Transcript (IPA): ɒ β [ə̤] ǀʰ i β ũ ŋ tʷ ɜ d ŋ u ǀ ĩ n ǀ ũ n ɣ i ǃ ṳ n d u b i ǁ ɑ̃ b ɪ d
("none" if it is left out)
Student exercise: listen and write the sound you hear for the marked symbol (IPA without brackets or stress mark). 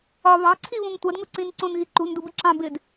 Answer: ɑ̤